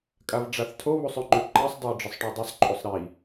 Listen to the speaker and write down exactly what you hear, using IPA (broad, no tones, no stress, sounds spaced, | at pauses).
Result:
kʼ a v ɖ͡ʐ a θ tʰ o β u sˤ ø ŋ͡ǃ ø ǃ æ sˤ dˤ ø j ɖ͡ʐ ə sˤ ʈ ø dˤ i sˤ ǃʼ u sˤ ɾ i